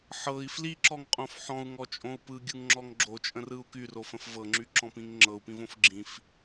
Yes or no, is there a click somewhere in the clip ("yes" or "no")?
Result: yes